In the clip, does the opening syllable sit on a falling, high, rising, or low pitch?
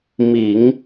low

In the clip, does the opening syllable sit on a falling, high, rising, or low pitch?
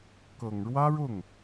low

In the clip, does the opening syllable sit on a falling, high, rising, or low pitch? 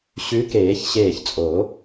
rising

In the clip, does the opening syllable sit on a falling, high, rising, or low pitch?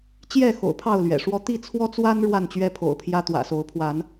falling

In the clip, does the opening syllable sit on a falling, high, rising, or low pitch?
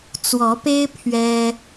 rising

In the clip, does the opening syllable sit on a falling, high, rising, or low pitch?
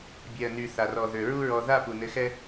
low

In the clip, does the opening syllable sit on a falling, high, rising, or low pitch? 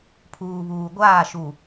low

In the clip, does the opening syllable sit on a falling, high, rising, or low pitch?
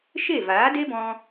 falling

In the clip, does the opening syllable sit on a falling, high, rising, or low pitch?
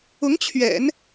rising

